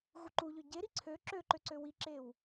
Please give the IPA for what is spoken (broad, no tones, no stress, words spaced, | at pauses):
ɣuǃuʎø ɟe ɾiǀʰø ǁøǃøǀø wiǁew